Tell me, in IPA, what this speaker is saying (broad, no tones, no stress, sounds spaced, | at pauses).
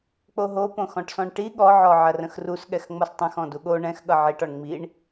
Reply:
k͡p o ɦ o p õ x ɔ̃ ʈ s ɔ̃ ɳ ʈ i ɠ ɔ ʕ ɔ ʕ ɐ r ə̃ x r u s ɠ ɛ x ŋ͡m ʌ s tˤ ɐ̃ x ɔ̃ d u ɠ o ɳ ɛ̃ x ɠ ʌ ʕ i ʈ ɔ ɳ ŋ͡m i ɳ